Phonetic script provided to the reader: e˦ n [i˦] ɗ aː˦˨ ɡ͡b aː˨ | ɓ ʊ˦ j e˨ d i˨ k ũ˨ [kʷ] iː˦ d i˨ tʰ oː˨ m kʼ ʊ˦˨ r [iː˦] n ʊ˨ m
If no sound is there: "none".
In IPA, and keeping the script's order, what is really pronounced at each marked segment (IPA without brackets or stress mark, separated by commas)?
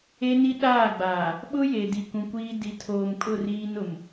i˦, kʷ, iː˦